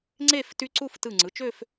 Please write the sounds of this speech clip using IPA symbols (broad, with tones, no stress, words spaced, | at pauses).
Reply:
ŋ͡ǀe˥˧f ty˦˥ǀu˥˧f tɯ˧˩ŋ͡ǀɯ˩˧˩t͡ʃø˥˧f